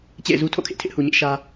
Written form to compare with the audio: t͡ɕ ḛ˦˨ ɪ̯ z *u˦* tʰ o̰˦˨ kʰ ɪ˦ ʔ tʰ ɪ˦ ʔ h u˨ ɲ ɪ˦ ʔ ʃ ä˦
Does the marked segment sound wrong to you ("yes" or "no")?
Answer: no